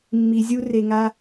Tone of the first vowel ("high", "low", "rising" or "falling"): low